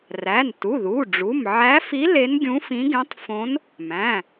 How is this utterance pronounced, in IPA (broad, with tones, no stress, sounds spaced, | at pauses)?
r æ˩˧˩ n t u˩˧˩ ð u˩˧˩ ɖ͡ʐ u˩˧˩ m ʕ æ˧˥ f i˧˥ l e˧˥ n ɡʲ ũ˧˥ f ĩ˧˥ ɡ ẽ˧˥ tˤ f õ˧˥ n | m æ̃˩˧˩